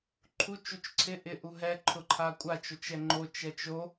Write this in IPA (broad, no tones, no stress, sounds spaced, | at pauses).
ǃʰ u t͡ʃ u t͡ʃ ǀʰ ɪ ʔ ɪ ʔ u ɦ ɛ ǃʰ ʊ ǃʰ a kʷʼ a t͡ʃ o t͡ʃ ɛ ŋ͡ǃ o t͡ʃ ɛ t͡ʃ o